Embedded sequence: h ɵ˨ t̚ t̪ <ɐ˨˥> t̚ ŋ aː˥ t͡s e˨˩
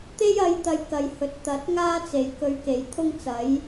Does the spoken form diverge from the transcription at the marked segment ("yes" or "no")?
no